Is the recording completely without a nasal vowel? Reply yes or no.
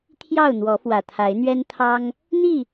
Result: yes